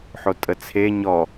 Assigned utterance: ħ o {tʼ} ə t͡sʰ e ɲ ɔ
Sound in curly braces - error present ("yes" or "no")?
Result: no